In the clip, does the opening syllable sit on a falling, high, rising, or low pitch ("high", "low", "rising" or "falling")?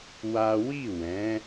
high